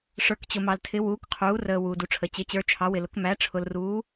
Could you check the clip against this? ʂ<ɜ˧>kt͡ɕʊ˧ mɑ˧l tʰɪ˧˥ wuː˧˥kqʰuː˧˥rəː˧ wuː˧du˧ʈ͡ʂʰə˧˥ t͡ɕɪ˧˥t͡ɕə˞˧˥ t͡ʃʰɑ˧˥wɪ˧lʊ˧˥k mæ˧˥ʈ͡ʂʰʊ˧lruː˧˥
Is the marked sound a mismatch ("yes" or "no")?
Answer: yes